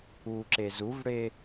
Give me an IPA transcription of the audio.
u ǁ e z u v ɽ e

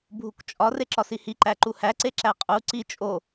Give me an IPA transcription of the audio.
bʱ u k t͡ʃʼ ɒ r e ǁ ɒ s i h i ǃ æ ǃ u h æ ǀ e ǁ æ qʼ u ǀ i t͡ʃʼ o

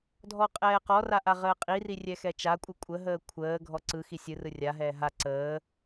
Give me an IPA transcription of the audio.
dʱ ɔ qʼ ɛː q ɔ r a ʔ a ʁ əː qʼ i r i rʲ ɛ x ɛ t͡ʃ a kʷʼ ɯ kʷʼ ə ɦ əː kʷʰ əː ɡʱ ɔ ǀ ɯ x i sʲ ɯ r ɯ rʲ a ɦ ɛː ɦ a ǀ əː

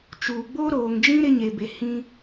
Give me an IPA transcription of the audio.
t͡ʃ uː˨ ɡ͡b oː˦ ɾ oː˨ ŋ d͡ʒ ĩ˦ ɾ ɪ˦ ɲ e˨ b e˨ h ĩ˦

